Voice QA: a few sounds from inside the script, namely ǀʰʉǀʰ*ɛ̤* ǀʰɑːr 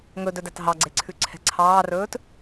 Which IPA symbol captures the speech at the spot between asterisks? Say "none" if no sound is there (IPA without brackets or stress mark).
ɛ̤